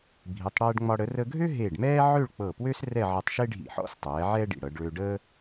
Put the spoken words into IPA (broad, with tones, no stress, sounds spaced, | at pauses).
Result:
bʱ i˩˧ tˤ ɽ ɛː˧ ɖ ŋ͡m ɒ˧ ɽ ə˩˧ r ə˧ ɡʱ ø˥ ɦ e˧˩ ɖ m ɛː˥ ʕ ø˥˧ ɭ k͡p ɤ˧˩ p w ø˥ s r ɛ˥˧ ʕ ə˧ tˤ ʃ e˥ ɖʱ ḭ˧˩ ħ ɔ̰˥ s tˤ ɛː˩˧ ʕ ɛ˥ ɖ ḭ˧˩ ɽ ɤ˩˧ ɖ ɭ ø˧ ɖ əː˥